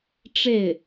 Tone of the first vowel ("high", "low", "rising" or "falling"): falling